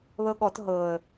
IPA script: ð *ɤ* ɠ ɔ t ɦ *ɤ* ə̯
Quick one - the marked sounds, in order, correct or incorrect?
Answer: correct, correct

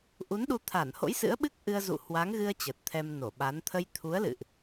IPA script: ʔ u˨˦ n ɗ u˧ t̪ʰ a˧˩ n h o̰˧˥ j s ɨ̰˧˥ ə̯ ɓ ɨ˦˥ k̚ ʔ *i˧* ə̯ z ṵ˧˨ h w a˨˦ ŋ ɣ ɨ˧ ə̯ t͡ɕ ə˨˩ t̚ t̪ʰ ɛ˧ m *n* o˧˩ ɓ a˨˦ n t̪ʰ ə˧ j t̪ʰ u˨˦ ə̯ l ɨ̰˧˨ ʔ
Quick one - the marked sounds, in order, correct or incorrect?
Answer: incorrect: ɨ˧, correct

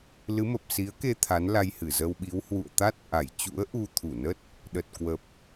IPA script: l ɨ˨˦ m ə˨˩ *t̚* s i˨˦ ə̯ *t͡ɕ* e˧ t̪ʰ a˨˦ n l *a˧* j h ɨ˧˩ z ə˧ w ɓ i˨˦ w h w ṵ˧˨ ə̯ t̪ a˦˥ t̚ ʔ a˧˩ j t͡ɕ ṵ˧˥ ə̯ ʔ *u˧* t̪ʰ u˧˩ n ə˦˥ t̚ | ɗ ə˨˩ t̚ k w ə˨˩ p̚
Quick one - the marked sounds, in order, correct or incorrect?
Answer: incorrect: p̚, incorrect: k, correct, correct

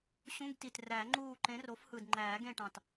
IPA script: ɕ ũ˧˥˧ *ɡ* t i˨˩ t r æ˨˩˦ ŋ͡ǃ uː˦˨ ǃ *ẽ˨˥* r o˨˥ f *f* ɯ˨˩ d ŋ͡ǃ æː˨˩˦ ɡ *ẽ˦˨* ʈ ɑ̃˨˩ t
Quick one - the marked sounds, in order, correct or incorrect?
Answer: correct, correct, incorrect: h, correct

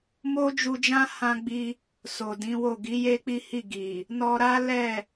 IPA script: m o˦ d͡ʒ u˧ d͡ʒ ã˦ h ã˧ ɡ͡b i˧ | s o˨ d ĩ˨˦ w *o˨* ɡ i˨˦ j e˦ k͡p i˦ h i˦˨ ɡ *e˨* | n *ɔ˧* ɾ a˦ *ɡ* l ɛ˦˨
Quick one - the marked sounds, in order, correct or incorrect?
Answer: incorrect: o˦˨, incorrect: i˨, correct, incorrect: none

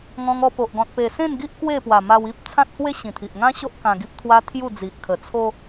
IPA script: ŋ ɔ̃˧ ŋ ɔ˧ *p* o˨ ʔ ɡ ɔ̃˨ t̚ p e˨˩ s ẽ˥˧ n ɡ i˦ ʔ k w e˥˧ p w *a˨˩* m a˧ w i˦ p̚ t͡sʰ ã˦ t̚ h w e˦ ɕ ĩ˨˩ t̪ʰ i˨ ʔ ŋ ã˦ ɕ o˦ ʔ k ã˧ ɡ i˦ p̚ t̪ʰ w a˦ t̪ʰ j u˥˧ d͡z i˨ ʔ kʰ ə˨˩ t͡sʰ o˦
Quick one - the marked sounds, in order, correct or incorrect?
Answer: correct, correct

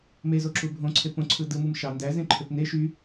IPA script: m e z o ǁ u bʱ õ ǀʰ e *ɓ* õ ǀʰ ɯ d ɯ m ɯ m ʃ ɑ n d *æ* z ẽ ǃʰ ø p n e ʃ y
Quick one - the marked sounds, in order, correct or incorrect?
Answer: incorrect: p, correct

